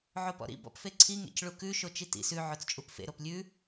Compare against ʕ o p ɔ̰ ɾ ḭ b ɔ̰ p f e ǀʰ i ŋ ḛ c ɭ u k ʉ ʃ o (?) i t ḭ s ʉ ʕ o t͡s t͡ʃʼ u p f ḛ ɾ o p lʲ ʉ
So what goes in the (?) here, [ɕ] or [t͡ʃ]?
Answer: t͡ʃ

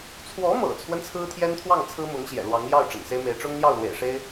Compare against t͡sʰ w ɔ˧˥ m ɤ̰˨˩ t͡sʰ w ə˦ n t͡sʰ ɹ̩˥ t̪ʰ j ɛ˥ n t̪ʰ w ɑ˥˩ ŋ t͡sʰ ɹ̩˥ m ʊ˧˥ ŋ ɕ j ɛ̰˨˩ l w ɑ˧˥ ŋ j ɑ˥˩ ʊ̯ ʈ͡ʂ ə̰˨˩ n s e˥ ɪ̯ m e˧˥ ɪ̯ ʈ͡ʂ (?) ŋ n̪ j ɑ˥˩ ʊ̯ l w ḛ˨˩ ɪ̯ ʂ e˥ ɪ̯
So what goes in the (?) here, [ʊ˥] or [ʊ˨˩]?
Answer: ʊ˥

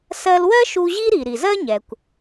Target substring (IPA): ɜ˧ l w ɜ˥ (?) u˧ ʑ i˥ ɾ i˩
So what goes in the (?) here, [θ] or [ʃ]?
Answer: ʃ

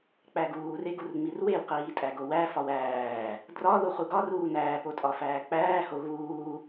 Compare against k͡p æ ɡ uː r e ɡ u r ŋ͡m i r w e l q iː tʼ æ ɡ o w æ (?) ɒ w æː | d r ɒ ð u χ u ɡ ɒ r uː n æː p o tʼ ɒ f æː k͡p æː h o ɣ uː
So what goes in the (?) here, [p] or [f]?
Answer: f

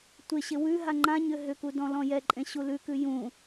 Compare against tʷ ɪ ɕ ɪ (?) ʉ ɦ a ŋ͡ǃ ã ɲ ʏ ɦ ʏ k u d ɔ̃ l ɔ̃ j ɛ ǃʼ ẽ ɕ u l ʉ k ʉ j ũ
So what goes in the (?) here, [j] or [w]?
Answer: w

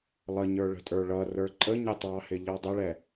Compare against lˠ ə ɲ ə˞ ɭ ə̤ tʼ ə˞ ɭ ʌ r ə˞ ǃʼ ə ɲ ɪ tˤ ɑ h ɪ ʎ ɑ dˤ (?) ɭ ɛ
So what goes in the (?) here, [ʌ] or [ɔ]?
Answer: ʌ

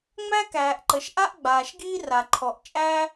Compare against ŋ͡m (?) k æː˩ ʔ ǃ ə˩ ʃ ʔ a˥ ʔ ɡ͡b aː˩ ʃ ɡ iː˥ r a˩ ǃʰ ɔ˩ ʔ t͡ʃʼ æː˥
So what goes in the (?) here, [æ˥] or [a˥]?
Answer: æ˥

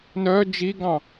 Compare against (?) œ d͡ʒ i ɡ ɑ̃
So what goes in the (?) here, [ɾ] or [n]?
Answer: n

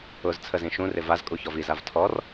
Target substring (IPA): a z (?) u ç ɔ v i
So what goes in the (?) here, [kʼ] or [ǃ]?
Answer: kʼ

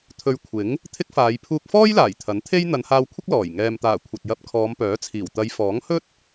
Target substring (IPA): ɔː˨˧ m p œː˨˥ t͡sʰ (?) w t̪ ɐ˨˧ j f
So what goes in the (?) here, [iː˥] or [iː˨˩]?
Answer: iː˨˩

